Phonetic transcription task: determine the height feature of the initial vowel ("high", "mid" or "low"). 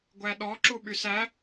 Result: low